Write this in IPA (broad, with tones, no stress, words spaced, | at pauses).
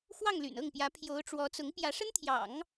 xwɑ˥˩ŋly̰˨˩nɤ˥˩ŋpjä˧˥ pʰjo˧˥ʊ̯ʈ͡ʂwɔ˧˥ t͡sʊ˧˥ŋpjä˧˥ʂə˥nt̪ʰjɑ̰˨˩˦ŋ